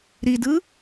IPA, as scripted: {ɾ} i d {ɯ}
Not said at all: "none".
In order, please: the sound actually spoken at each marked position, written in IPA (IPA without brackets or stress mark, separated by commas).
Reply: ɾ, ɯ